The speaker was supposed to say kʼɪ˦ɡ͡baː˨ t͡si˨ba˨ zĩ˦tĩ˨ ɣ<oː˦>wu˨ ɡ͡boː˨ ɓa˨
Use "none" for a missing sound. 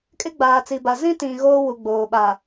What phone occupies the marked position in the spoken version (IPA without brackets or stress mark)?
oː˦